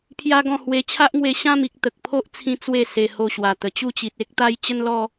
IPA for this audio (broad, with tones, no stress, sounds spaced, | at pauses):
pʰ j a˦ ɡ ɔ̃˥˧ h w e˧ t͡ɕʰ a˦ ʔ ŋ w e˧ ɕ ã˥˧ m i˨ k̚ t̪ ə˨ k̚ pʰ o˦ ʔ t͡sʰ ĩ˧ t͡s w e˥˧ s e˧ h o˧ ɕ w a˨˩ t̪ ə˨˩ t͡ɕ u˥˧ t͡ɕ i˨ t̚ e˦ k̚ t̪ a˦ j t͡ɕ ə˦ n l ɔ˦